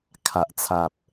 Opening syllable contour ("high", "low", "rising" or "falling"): low